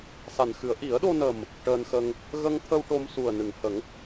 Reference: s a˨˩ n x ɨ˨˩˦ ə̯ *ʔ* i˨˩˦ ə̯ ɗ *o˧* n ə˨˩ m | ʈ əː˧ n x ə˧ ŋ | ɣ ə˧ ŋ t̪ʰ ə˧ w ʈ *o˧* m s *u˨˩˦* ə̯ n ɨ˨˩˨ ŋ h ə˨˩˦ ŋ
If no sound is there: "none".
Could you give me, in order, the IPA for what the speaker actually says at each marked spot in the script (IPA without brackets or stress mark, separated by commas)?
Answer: ʔ, o˧, o˧, u˨˩